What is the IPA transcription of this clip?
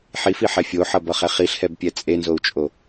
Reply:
ħ i f i ħ ɛ fʲ o ħ ʌ b ʌ χ ɛ χ i ɬ h ɛ b pʲ ɛ t͡sʼ e n z o u̯ t͡ʃʼ o

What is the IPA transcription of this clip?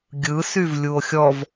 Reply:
ɡʲ ɯ s y v lʲ u o̯ xʲ ɔ v

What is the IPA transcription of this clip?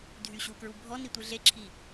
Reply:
dʱ y ɕ u k ɹ u bʱ ɔ n i tʷ i ɮ e ǁʰ i

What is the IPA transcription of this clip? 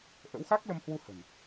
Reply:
ʔ ə̰˧˥ w x a˦˥ k̚ l ə˧ m h w u˧ h ə̤˨˩ n

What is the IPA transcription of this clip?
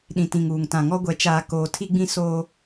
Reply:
ɗ ĩ˨ t ĩ˨ ŋ uː˨ ŋ t ã˨ ŋ ɔ˦ ɡʷ ɛ˨ t͡ʃ aː˨ k oː˨ tʰ i˦ ɡ͡b ĩ˦ s oː˦

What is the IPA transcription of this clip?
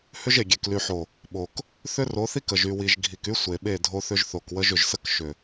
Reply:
h ʏ˦ ʒ e˨ ɡʲ e˨ k l y˨ ħ o˨ | ɓ o˨ k | θ ʏ˦ r o˨˦ θ i˦ k ə˨ ʒ y˨ w i˨ ʒ ɡʱ i˨ k y˦ sʷ e˨ ɓ e˦˨ dʱ o˦ θ ʏ˦ ʒ θ o˨ k w ə˦ ʒ ʏ˨ ʒ s ə˦ k ʃ ʏ˨

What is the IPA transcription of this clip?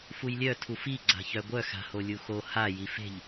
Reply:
f u j lʲ œ tʰ u f i ɡ͡ǀ a̤ ç œ ɡʷ œ x a̤ h o lʲ u x o h a j i f e̤ ʎ

